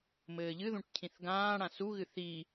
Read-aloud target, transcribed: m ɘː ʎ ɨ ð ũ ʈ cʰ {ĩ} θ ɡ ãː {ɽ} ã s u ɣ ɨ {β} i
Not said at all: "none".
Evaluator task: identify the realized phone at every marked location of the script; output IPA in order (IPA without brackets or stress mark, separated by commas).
ĩ, ɽ, θ